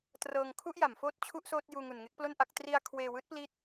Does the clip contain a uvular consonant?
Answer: no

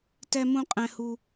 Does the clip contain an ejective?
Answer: yes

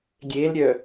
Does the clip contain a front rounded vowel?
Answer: yes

